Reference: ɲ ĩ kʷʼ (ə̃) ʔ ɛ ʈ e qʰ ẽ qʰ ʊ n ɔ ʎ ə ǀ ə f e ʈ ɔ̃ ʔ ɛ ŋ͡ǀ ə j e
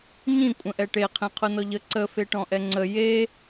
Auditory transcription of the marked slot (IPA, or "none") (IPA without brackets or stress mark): ə̃